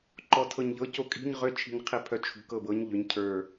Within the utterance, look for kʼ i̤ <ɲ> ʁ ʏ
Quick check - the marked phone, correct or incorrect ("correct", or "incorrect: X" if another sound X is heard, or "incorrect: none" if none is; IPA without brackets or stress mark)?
correct